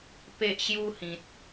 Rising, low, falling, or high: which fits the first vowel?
high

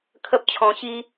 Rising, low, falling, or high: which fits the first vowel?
high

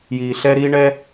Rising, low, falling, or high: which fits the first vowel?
low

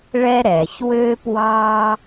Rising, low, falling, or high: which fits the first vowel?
high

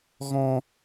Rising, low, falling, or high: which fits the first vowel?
high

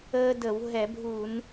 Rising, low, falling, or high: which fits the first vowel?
high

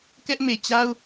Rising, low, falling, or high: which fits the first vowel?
high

